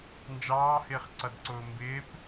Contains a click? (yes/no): yes